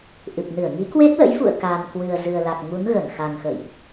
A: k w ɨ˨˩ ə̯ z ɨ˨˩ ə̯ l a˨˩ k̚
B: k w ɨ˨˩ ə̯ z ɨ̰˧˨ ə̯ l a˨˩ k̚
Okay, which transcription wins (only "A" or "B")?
A